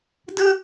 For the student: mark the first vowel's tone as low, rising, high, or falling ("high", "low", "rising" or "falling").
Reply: high